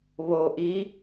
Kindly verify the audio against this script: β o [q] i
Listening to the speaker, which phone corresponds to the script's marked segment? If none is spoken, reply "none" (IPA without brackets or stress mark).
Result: ʔ